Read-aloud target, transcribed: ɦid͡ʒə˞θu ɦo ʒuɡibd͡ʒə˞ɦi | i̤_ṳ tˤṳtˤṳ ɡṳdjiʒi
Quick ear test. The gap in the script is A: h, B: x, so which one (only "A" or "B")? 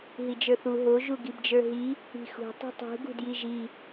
B